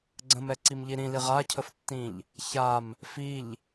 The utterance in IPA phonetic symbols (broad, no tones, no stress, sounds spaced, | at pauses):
ɡ͡ǀ ə̃ m ɛ ǀ i m ʎ i ɾ ĩ l i ʁ a cʰ ə f tː ĩ ʎ | ç a m | f i ʎ